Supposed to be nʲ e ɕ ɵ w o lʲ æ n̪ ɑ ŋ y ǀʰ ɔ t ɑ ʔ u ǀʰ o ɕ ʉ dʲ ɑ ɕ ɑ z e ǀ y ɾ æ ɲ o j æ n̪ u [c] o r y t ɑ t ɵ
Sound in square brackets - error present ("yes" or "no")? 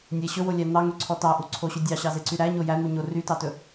yes